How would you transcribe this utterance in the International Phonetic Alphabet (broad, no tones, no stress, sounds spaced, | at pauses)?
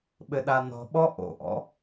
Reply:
ɓ ɘ ɗ a n ɔ̤ ɓ ɔ ʔ o̰ ʔ ɔ̰